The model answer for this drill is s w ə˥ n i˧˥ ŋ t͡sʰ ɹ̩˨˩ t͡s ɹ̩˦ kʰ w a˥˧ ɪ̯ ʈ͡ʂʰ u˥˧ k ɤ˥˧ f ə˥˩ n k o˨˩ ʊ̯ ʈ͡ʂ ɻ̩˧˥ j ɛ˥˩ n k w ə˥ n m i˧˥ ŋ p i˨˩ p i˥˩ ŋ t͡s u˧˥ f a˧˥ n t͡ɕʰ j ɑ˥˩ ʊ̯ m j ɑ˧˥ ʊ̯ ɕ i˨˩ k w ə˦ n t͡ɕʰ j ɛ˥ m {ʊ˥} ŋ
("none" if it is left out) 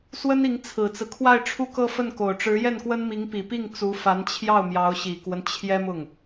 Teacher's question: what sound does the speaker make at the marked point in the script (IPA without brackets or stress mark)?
ʊ˥˩